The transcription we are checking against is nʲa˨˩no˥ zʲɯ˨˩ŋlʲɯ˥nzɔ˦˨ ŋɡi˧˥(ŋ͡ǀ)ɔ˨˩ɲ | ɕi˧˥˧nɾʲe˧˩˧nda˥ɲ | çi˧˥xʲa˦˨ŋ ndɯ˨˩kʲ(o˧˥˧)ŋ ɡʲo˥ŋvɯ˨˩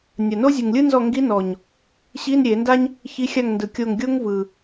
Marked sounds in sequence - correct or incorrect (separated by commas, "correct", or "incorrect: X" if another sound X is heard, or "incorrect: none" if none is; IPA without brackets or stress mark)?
incorrect: n, incorrect: o˦˨